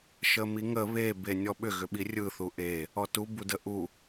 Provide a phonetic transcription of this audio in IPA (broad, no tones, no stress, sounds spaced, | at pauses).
ʃ ə m i ŋ ə β e b e nʲ ɔ ɓ ʏ ɣ ʏ ɓ i rʲ ɯ θ u ʔ e | ɔ t u b u d ə ʔ u